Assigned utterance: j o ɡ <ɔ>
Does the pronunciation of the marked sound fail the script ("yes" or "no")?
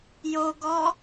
no